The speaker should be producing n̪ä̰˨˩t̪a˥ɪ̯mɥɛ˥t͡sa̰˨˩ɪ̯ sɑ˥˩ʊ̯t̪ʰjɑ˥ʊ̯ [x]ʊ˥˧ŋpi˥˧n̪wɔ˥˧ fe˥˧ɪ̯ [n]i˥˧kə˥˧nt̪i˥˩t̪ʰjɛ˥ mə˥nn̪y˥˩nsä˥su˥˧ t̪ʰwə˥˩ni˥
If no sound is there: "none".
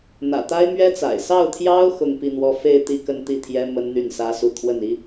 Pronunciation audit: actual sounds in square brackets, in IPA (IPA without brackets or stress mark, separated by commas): x, t̪